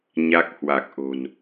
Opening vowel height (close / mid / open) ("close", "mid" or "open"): open